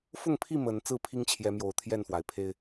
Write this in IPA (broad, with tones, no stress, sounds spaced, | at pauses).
f ʊ˥˨ ŋ pʰ i˥˨ m ə˨˦ n t͡s ɹ̩˥˨ pʰ i˦ ŋ t͡ɕʰ j ɛ˨˦ m j o˨˩ ʊ̯ t̪ʰ j ɛ˥˨ n f w a˩ ɪ̯ pʰ e˦ ɪ̯